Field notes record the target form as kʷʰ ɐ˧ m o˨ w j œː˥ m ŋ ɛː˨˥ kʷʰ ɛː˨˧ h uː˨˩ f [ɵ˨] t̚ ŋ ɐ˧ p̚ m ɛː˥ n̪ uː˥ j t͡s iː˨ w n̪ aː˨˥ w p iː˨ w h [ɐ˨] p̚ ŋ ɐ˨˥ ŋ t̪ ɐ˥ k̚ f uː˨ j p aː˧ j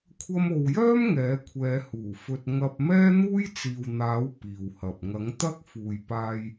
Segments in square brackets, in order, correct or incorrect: incorrect: ɵ˧, correct

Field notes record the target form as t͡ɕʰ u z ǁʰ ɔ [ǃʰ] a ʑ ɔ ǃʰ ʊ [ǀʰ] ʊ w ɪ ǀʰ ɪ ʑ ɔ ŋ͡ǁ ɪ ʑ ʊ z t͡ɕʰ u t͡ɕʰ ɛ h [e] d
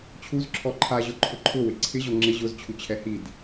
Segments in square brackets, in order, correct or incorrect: correct, incorrect: ǃʰ, incorrect: i

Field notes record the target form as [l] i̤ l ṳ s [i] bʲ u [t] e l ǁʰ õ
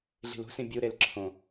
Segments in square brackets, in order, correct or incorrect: incorrect: ɮ, incorrect: ĩ, incorrect: ɾ

